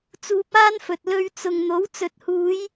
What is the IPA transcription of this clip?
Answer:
t͡s uː˧ p̚ aː˥ n f ɵ˨ t̚ l ɵ˧ ɥ t͡s ʊ˨ ŋ n̪ o˨˥ w t͡s ɵ˨ t̚ h uː˨˧ j

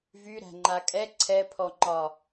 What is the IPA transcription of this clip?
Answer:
v y ɾ æ̤ ŋ͡ǃ a kʼ ɛ ǀʰ ɛ pʰ ɔ ŋ͡ǃ ɒ

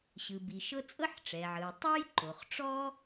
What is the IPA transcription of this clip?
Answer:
ɕ ɯ˩ b i˩ ʃ ɤ˥ t͡sʼ ɤ˥ ħ ʈ͡ʂ ɛ˩ ʕ ɯ˩ ʊ̯ tˤ o˥ j ǃ o˩ χ ʈ͡ʂ ɔ˥

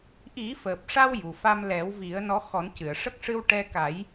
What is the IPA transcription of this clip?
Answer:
ʔ i˨˩˦ f əː˨˩ p̚ ʂ a˧ w j u˨˩ f a˧ m l ɛ˨˩˦ w v i˨˩˦ ə̯ n ɔ˧˥ x ɔ˨˩˦ n c ɨ˨˩˨ ə̯ ʂ ə˦˥ k̚ ʂ ɨ˧ w ʈ ɛ˧ k a˨˩˦ j

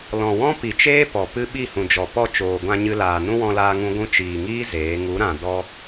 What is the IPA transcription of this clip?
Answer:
l ɔ̃˨ w ɔ̃˦ p i˨ t͡ʃ eː˦ p ɔ˨ p ɨ˦ ɓ i˦˨ h ũ˨ d͡ʒ ɔ˨ p ɔ˦˨ t͡ʃ oː˨ ɡʷ ã˧ ɲ ɨ˧ l aː˨ n ũ˦ w ɔ̃˧ l aː˧ ŋ ũ˧ ɡʷ ũ˧ t͡ʃ iː˨ ŋ iː˦ z eː˨˦ ŋ u˨˦ ɾ ã˨ d ɔ˧

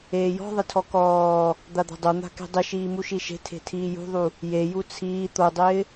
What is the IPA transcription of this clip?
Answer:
eː j ɔ̤ ðˤ ɪ tʰ ɔ k ɔː | d̪ a d̪ a̤ dˤ o n̪ a̤ k e̤ dˤ ɪ ʃ iː m u ʃ i ʃ e̤ tʰ e̤ tʰ iː j ṳ ðˤ u | j e j u t͡sʰ iː t̪ o dˤ ɪː

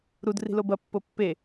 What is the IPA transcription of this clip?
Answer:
ɾ u d r i̤ l o b ɐ pː o pː e

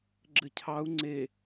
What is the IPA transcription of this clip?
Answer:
ɡ͡ǁ ɘ cʰ ɑ u̯ ŋ͡ǀ e

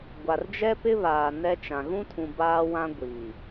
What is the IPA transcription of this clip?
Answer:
ɡʷ a˨ r d͡ʒ ɛ˦ p ɪ˦ β aː˨ n ɛ˦ t͡ʃ ã˨ ɣ ũ˦ tʰ ũ˨ b aː˦ w ã˦ ɡʷ iː˨

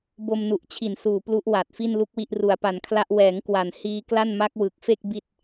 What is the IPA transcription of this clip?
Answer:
b o˧ m n u˨˩ ʔ t͡ɕʰ i˨˩ n s uː˨˩ p l u˦˥ ʔ w a˨˩ t̚ f i˥˩ n l u˥˩ k̚ w i˥˩ ʔ r u˨˩ a̯ p a˨˩ n kʰ l a˦˥ ʔ w ɛː˩˦ ŋ k w a˨˩ n h iː˧ k l a˥˩ n m a˦˥ k̚ w ɯ˨˩ k̚ f e˥˩ k̚ b i˥˩ t̚

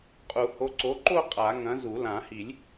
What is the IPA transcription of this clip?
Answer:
qʼ u˨˩˦ h o˨˥ ǀ o˨˥ ǃ o˥˧ qʼ a˨˩˦ ŋ ɐ̃˨˥ z u˨˩˦ l ã˨˩˦ h i˨˩˦ lʲ

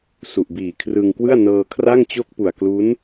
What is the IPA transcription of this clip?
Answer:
s u˨˩ ʔ b iː˨˩ kʰ r ɯ˧ ŋ k w ɯ˥˩ a̯ n ɤː˧ kʰ r a˥˩ ŋ t͡ɕ o˦˥ k̚ p u˨˩ a̯ k l u˦˥ n

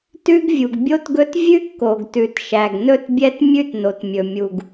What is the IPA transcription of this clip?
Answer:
t ʉ˥ ɡ vʲ u˩ ɡ bʲ o˥ t ɡ ɵ˥ t vʲ ʉ˥ kː o˩ ɡ t ʉ˩ t ʃ æ˩ ɡ n ɵ˥ t bʲ ɛ˥ t mʲ ʉ˥ t n o˩ t mʲ ɵ˩ mʲ u˩ ɡ

